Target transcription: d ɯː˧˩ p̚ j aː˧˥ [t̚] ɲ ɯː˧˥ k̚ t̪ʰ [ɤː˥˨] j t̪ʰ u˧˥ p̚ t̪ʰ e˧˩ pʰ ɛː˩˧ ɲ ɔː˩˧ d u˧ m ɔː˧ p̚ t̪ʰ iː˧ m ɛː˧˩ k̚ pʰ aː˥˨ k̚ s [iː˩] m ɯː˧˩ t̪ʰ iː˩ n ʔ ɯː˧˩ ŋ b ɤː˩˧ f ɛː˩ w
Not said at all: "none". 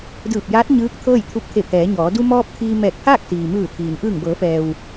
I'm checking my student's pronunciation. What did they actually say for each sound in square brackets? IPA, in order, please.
t̚, ɤː˥˨, iː˩

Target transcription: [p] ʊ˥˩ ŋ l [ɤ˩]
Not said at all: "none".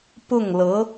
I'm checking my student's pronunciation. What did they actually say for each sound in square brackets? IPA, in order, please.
p, ɤ˧˥

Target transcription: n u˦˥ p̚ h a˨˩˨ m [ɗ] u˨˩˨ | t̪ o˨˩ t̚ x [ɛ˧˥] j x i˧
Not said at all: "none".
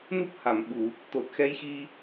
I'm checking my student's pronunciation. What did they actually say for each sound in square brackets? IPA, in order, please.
ɓ, ɛ˧˥

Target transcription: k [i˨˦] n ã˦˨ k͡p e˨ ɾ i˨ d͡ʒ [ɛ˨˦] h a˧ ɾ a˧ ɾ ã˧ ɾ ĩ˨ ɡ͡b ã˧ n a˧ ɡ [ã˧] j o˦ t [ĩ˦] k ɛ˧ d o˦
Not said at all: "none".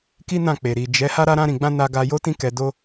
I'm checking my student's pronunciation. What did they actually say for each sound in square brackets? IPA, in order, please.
i˦, ɛ˨˦, a˧, ĩ˦

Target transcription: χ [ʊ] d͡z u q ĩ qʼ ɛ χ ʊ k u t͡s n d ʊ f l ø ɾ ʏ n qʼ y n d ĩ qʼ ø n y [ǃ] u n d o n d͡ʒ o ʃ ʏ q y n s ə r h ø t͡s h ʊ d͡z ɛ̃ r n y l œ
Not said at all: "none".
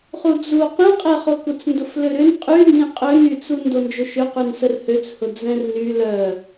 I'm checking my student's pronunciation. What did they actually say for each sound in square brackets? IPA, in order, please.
u, t͡s

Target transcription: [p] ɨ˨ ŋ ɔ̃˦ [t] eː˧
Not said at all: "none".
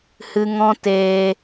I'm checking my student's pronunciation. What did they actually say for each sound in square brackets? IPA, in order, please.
h, t

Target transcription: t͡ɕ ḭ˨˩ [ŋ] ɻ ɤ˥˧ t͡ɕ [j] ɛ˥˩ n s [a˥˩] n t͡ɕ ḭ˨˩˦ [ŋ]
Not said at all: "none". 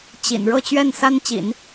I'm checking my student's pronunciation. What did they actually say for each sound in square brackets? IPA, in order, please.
n, ɥ, a˥, n

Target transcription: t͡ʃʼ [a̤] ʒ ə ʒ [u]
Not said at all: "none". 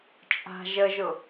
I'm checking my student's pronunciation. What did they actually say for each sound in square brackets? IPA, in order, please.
a̤, ʊ

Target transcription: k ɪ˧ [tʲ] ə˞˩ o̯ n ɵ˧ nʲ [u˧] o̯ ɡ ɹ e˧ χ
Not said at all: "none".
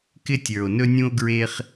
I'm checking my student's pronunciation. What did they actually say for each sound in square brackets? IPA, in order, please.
tʲ, ũ˧

